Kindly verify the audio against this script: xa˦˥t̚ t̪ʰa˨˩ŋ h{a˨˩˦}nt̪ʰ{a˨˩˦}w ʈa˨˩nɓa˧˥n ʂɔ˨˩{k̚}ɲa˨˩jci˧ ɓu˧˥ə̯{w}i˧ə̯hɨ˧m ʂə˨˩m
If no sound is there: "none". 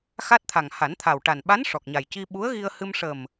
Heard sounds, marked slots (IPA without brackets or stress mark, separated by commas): a˨˩˦, a˨˩, k̚, ɣ